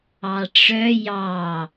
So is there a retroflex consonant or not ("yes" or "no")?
yes